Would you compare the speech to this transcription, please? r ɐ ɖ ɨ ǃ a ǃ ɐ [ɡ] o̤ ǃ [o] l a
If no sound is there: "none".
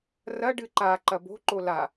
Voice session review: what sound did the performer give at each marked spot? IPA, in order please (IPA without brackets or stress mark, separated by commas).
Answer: b, o